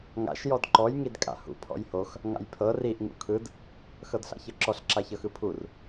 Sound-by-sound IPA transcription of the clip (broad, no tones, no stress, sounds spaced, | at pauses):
ŋ a̰ ʃ j ɔ d ǃ ɔ j ŋ i d kʼ a̰ h ṵ pʰ ɔ̰ j h o x | ŋ a̰ j pʰ ɤ r i ʔ ŋ ṵ kʰ ɯ d | x ɤ d ɬ a̰ ç ɤ ǁ ɔ ɬ ǁ a ç ɤ x ɯ pʰ u r